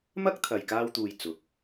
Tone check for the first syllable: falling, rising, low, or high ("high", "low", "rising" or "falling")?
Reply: high